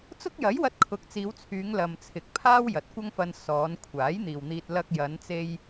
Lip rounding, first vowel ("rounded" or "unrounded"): rounded